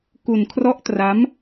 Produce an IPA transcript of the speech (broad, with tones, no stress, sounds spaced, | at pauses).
k u˧ n kʰ r ɔ˦˥ ʔ t r a˦˥ m